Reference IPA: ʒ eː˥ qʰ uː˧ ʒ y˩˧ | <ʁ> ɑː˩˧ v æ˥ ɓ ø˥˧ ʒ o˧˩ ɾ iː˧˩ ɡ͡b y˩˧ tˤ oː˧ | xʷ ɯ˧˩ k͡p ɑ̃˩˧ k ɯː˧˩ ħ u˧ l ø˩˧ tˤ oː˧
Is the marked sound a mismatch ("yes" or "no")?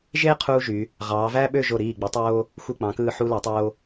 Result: no